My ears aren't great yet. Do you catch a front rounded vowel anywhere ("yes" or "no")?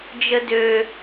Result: yes